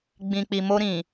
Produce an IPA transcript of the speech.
ɡ͡b ĩ˨ k͡p i˨ m o˧ ɾ ĩ˨

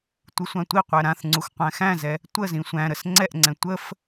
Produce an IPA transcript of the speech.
tʷ ɨ sʷ ã tʷ i qʷ æ ɾ ã θ ŋ͡ǀ u x qʷ æ̃ x æ̃ z ɛ | tʷ ə z ĩ sʷ æ̃ ɾ ə s ŋ͡ǀ ɛ ʔ ŋ͡ǀ ɛ̃ tʷ ə f

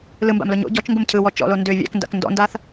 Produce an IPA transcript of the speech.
l ɯ m b a̰ m l ʊ ɲ o̰ ɟ ɔ t͡ʃ ŋ ɡ ʊ m cʰ ɯ w ɔ t͡ʃ ɔ̰ l o n d ʏ vʲ æ̰ k n d a̰ k n d ɔ̰ n d a θ

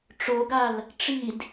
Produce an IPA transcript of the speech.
ʈ͡ʂ o ɡ a l | ʈ͡ʂ i d

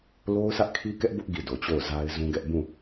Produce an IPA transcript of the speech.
l o˦ ʊ̯ s ä˦ ʔ kʰ i˦ k ɛ˦ ʔ b ʊ˦ ʔ ɡ i˦˨ d o˨ t͡ɕ o˦˨ ʊ̯ z a˦ ɪ̯ z ũ˦ ɡ ɛ˦ ʔ b ũ˦˨

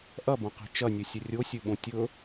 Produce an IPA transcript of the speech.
ʔ ɐ b ɐ̃ q i̤ t͡ʃ ɐ nʲ ɨ sʲ ɵ rʲ o sʲ ɨ ɓ õ tʲ ɵ

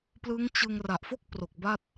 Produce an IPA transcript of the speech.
p l ɯ˦˥ ŋ t͡ɕ ɯ˧ ŋ r a˨˩ ʔ f o˥˩ k̚ p r o˨˩ k̚ b a˥˩ t̚

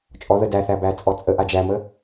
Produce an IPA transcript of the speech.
t͡ʃʼ ɔ ð ə d æ θ æ b æ t͡sʼ ɔ t͡sʼ ə ʔ a d͡ʒ æ m ə

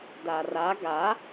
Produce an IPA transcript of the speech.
d a r a ɡ a

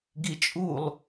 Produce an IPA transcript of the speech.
ɡ i t͡ʃʼ u lˠ

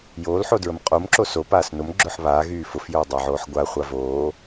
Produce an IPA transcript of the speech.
j oː l ħ o d ɹ ə m qʼ o m ǁ o s o p aː s n o m ɡ͡ǁ ʊ ħ β aː ɣ yː f ʊ f j ʊː dˤ əː ʕ oː ħ ɡʷ a χʷ a v oː

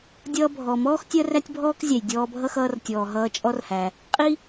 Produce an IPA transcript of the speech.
dʲ ʌː˧ bʱ ɔ˩ m ɔː˥ x tʲ ɜ˥ r æ˥ tʲ bʱ ɔː˥ k zʲ æ˩ j dʲ ɔː˧ bʱ ʌ˥ x ʌː˧ r tʲ ɔː˩ ɦ ʌː˧ t͡ʃʼ ɔ˥ r h æ˩ | qʼ i˥

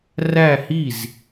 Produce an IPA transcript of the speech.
r æ˥˧ h i˥˩ z

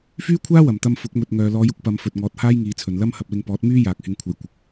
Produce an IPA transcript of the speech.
f yː˥ kʷʰ aː˥ w ɐ˨˩ m t̪ ɐ˧ m f ʊ˨˥ k̚ m ɵ˨ t̚ ŋ œː˨ l ɔː˨˧ j ʊ˥ k̚ p ɐ˨˧ m f ɵ˨ t̚ ŋ ɔː˨˥ t̚ h aː˥ j ŋ iː˨˧ t͡sʰ ɵ˨ n l ɐ˥ m h ɐ˨ p̚ l ɪ˧ ŋ p ɔː˨˥ t̚ m yː˥ j aː˨ k̚ h ɪ˧ ŋ kʷʰ ɐ˨˧ j kʷ ɪ˨ k̚

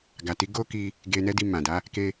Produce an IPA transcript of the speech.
ɡ a˨ t i˨˦ ɡ o˦ k i˧ | ɡ e˧ n ɛ˦ d i˧ m ã˨ d a˨˦ | k e˧

